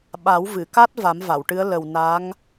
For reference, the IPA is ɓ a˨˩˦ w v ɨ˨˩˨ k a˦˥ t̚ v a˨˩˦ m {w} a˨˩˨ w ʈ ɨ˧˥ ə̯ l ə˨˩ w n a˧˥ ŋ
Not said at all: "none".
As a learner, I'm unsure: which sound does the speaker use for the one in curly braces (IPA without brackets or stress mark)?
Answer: v